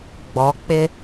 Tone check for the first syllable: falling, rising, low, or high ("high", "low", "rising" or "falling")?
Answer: rising